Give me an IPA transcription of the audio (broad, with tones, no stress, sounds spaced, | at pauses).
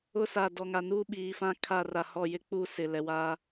ʊ˦ s a˨ d ɔ˨ ŋ a˨ n uː˦ ɓ iː˨ f ã˦ kʰ a˦˨ r a˨ h ɔ˦˨ j ɪ˦ k͡p uː˦ s ɪ˨ l ɛ˨ w a˦